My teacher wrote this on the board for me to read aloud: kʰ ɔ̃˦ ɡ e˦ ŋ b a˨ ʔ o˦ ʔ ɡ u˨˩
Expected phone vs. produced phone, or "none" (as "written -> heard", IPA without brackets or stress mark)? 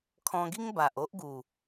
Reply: e˦ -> i˦